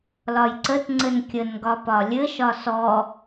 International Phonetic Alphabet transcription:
l ɒ j ǀ ə t ŋ͡ǀ ɘ n kʲ ə n ɡ ɒ p ɒ lʲ ɘ ʃ ɒ s ɔ

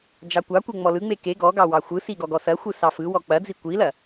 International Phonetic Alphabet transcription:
d͡ʒ ɑ kʷ ɑ kʷ e ŋ͡m ɔ l ɯ ŋ͡m e k e ɡ ɔ ɡ ɑ w ɑ xʷ ɯ s i ɡ ɔ ɡ ɔ s ɐ xʷ ɯ s ɑ f ɯ w ɔ k͡p ɐ d͡z i kʷ i l ɐ

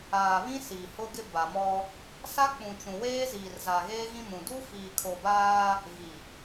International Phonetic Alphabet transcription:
aː˨ β ĩ˦ s i˨ h ʊ˦ ɡ ɪ˦ b a˨ m ɔ˦ | s a˦ k͡p ũ˨ t͡ʃ ũ˨ w eː˦ z iː˨ r z a˨ ɣ eː˦ ɣ ĩ˦ m ũ˨ d u˦ f iː˨ kʰ o˨ b aː˦ | ɣ i˨

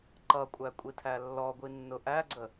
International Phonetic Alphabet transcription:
ǃ ʌ kʷʼ æ kʷʼ i tʰ æ lː ɔ ɡʷ i nː ʊ ʔ æ ɡ͡ǀ ə

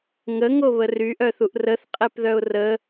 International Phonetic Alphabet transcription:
ŋ ə ŋ o β ə r y ʔ œ θ u ʔ r ə θ qʼ e p ð œ ʊ̯ r ə

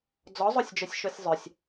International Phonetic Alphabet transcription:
d͡z ɔ zˤ o sʲ d͡ʒ œ sʲ ʃ o sʲ zˤ œ sʲ

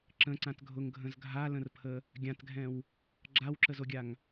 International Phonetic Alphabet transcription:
ǁ ə̃ ǀ ã t ɡʱ ʊ ŋ ɡʱ ə̃ z ɡʱ a l ə̃ r pʰ ə | ɡʲ ã t ɡʱ ɛ̃ w | ɡ͡ǁ a w ǁ ə z o ɡʲ a ŋ

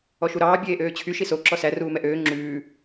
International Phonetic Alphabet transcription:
ɔ ʃ u ɾ ɑː bʲ eː ʔ øː t͡ɕʰ y ʃ i s o ǁ ɔ s æ r uː m ɛ ʔ øː ŋ͡ǁ ʉː

